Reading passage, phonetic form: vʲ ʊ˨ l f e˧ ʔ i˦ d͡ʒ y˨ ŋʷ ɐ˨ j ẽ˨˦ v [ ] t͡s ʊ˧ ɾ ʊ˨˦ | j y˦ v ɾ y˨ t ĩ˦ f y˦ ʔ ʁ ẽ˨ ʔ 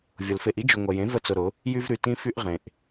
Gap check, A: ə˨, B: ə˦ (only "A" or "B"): B